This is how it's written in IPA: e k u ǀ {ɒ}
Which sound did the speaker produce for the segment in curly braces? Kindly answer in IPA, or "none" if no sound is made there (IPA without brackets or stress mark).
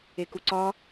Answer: ɒ